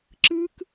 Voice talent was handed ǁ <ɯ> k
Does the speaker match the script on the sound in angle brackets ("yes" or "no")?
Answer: yes